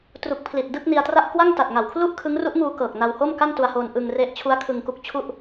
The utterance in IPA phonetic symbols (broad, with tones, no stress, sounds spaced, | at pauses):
t r u˨˩ k̚ pʰ l i˨˩ t̚ d ɯ˥˩ k̚ n i˧ a̯ t r a˥˩ ʔ k w a˥˩ ŋ t a˨˩ t̚ ŋ a˨˩ w kʰ l u˥˩ ʔ kʰ ɯ˦˥ ŋ r u˦˥ ʔ ŋ uː˧ k ɤː˨˩ k̚ n a˧ w h o˥˩ m k a˥˩ n t u˧ a̯ h o˧ n ʔ ɯ˧ ŋ r e˦˥ ʔ t͡ɕʰ u˦˥ a̯ kʰ ɯ˧ ŋ k u˦˥ k̚ t͡ɕʰ u˥˩ ʔ